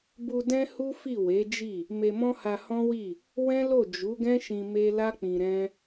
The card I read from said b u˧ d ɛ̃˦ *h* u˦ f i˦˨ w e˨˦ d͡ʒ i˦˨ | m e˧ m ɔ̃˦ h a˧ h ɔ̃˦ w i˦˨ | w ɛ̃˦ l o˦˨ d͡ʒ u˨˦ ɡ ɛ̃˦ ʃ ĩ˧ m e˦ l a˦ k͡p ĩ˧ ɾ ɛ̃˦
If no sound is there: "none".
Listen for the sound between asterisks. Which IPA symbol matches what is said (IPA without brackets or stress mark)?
h